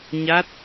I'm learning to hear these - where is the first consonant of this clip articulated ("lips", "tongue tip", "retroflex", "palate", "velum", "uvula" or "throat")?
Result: palate